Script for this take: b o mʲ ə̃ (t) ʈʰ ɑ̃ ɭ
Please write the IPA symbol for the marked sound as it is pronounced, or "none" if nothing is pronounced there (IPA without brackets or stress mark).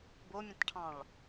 t